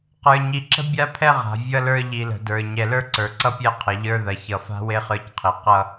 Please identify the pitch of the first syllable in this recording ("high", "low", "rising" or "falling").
low